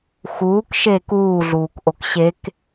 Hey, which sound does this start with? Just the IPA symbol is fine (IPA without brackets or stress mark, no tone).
x